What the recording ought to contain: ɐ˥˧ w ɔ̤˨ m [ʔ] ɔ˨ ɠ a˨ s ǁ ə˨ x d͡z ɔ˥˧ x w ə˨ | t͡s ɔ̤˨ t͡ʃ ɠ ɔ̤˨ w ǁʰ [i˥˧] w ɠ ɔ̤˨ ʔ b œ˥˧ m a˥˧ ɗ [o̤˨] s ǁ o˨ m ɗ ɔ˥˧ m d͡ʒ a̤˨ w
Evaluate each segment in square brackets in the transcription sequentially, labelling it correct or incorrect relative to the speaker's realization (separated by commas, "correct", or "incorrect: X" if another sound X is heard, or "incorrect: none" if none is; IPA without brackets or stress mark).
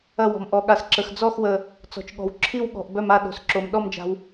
correct, correct, correct